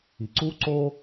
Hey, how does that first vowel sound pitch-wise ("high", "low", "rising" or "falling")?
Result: low